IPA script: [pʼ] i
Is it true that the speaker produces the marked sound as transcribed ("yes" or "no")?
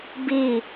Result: no